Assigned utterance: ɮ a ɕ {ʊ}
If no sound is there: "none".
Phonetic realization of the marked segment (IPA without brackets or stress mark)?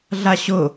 ʊ